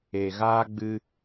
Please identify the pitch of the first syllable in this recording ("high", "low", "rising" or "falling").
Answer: low